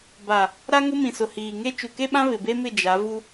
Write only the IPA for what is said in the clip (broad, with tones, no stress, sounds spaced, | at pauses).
b a˨ | ɾ a˦ ŋ ʊ˦ m ĩ˨ s ʊ˨ h iː˨ ŋ e˦ t͡ʃ u˨ k e˦ ɓ ã˦ β ɪ˨ b e˦ m ɪ˦˨ d͡ʒ a˨˦ v u˦